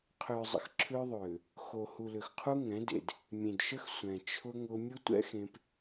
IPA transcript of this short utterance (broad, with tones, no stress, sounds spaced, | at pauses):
qʰ ʏː˨ zˤ ə̰˨ x ǁʰ ʏː˦ ðˤ ʏː˨ | x o˨ h u˨ l ʏ˨ x qʰ u˦ ŋ ɛ̃˨˦ d ḛ˨ d | mʲ ẽ˨ d ʃ ə˦ x sʷ ɛ̃˨ t͡ʃʰ ʊ˦ ŋ ʊ˦ mʲ ʊ˦ tʷ ɛ̰˦ x ẽ˦ p